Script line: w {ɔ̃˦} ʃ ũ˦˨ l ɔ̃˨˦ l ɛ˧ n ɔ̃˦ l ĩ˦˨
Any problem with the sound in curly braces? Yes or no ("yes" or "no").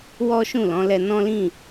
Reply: yes